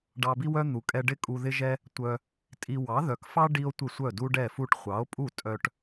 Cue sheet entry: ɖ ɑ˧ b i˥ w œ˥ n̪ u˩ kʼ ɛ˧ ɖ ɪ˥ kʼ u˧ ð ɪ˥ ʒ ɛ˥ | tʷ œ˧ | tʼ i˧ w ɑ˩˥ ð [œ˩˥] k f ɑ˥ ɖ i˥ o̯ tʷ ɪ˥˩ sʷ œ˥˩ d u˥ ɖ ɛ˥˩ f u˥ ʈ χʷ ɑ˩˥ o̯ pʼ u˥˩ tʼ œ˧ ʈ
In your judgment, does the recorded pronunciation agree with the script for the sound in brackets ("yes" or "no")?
yes